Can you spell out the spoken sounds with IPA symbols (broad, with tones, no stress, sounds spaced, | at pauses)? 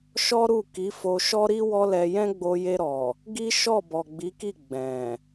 ʃ ɔ˦ ɾ u˦˨ k i˨˦ f o˧ ʃ ɔ˦ ɾ i˦ w ɔ˦ l ɛ˧ j ɛ̃˦ ɡ͡b o˧ j e˧ ɾ ɔ˨ | ɡ i˦ ʃ ɔ˦˨ b ɔ˨ ɡ͡b i˨˦ k i˦˨ ɡ͡b ɛ̃˨